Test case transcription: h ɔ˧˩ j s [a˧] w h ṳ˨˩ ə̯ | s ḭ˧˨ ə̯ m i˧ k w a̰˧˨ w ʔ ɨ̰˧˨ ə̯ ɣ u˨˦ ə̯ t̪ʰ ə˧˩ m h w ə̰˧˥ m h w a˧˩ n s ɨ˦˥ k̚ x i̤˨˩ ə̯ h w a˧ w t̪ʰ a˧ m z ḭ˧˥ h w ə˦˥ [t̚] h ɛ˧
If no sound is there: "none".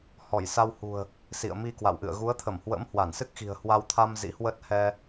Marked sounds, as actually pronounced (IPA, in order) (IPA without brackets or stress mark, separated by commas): a˧, t̚